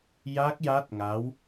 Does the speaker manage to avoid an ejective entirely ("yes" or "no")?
yes